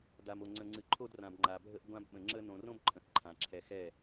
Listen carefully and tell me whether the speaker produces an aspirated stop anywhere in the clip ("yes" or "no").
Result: yes